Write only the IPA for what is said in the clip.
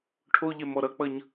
ʈʰ o ʎ ɛ m ɔ ɾ ʌ k͡p ʌ ɲ

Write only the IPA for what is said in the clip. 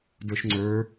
d ə˞ ʃ ŋ͡ǀ ə˞

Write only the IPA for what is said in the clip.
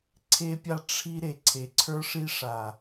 ǀʰ e˦ pʲ a˦ ʈ͡ʂʰ i˦ ɾ e˨ ǀʰ e˨ ǀʰ ə˞˦ ʂ i˦ ʂ a˨

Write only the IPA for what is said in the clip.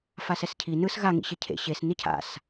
f a s ɛ s cʰ i n ɯ s ɣ a ŋ ḭ ɕ e cʰ ḛ ɕ e s n i cʰ a̰ s

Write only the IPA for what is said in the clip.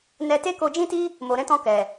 n ɛ˧ t e˦ k o˧ d͡ʒ ĩ˦ t i˦ | m o˨ ɾ ɛ̃˨˦ t ɔ̃˧ k ɛ˨

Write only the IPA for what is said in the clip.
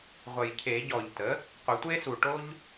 ʁʷ ə˨˩ j cʰ e˨˩˦ ɟ ɔ˨˩ ʎ t ə˩˥ | qʷ ɪ˨˩˦ tʷ e˥ s u˨˩ ʈ o˥ ʎ

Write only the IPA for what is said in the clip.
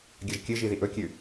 ɡʲ ɐ ʒ kʲ ɨ ʒ i ð i ʔ ɵ kʲ ʉ

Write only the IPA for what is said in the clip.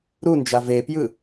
ɾ u n d͡ʒ a v e p j ɯ

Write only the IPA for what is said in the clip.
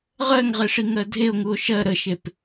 ʁ ɜ ŋ ʁ e ʂ i ŋ ɜ dʱ e o̯ ŋ u o̯ ʃ ɜ ɾ ə ʃ e p

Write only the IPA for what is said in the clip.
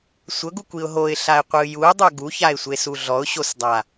sʷ ɤ ɡ u kʷ i ʊ̯ ɦ o ɪ̯ ɬ a ɪ̯ qʷ ɯ j u ə̯ dˤ o ɡ u ç a ɪ̯ sʷ e s u ɮ ɔ ʊ̯ ɕ o s dˤ a

